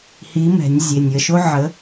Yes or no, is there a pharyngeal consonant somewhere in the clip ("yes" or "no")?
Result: yes